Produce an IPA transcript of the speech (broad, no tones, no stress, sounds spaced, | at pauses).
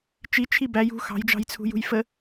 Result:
t͡ʃ i t͡ʃʰ i b æ j ṳ x ɑ̤ j d͡ʒ ɑ̤ j t͡sʰ ṳ j ṳ j f ə